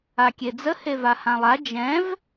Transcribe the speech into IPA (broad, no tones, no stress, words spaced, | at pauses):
akʲed͡zə hevahãlˠa d͡ʒɛ̃v